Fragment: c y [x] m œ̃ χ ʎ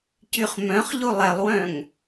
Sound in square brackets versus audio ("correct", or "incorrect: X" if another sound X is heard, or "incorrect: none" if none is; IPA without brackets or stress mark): incorrect: χ